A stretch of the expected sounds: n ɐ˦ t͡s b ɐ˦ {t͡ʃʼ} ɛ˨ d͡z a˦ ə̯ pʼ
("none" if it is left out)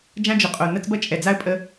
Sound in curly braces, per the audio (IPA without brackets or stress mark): t͡ʃʼ